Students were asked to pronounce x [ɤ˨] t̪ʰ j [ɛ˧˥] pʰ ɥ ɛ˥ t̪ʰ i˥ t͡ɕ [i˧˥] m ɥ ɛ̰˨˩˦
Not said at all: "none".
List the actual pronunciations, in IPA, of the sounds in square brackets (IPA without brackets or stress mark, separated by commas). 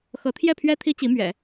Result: ɤ˧˥, ɛ˥˩, i˧˥